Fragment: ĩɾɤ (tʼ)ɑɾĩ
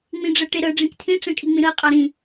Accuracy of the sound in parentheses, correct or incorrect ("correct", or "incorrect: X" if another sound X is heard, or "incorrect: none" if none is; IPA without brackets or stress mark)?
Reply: incorrect: qʼ